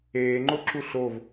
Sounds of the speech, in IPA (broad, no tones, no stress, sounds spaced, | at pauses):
eː ŋ͡ǃ o ǁ u ɬ o v